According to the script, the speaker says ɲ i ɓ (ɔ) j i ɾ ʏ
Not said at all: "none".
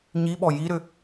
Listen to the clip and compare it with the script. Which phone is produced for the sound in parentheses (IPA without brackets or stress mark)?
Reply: ɔ